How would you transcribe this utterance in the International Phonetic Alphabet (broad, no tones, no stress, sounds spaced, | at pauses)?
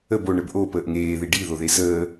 ə b o ɳ ə b ʔ o p əː ʔ ŋ eː ð i ɖ i ð o ð e s əː